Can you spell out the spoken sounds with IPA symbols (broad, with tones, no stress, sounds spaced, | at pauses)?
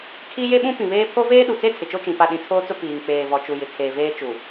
kʰ i˦ j e˦ ɓ ũ˦ p ĩ˨ β eː˦ pʰ o˦ v eː˦ ɗ u˨ t͡s e˦ tʰ ɪ˨ t͡ʃ o˦ t͡ʃ ĩ˨ p a˦ ɗ ĩ˨ tʰ oː˦ t͡s ʊ˦ p iː˨ ŋ k͡p eː˨ v ɔ˨ t͡ʃ u˨ j ɪ˨ kʰ eː˨ v eː˦ t͡ʃ u˨